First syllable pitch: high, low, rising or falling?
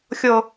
high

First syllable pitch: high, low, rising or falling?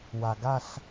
low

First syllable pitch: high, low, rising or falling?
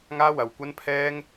high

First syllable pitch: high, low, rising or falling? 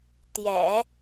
low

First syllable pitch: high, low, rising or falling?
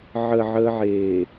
low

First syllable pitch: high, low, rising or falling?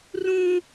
high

